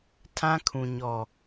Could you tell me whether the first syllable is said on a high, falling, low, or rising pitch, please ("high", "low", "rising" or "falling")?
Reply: high